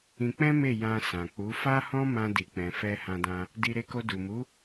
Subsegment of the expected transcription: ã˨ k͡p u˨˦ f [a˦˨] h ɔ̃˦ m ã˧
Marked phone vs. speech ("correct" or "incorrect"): incorrect